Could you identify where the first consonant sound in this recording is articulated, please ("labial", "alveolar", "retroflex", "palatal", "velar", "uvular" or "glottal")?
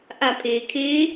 glottal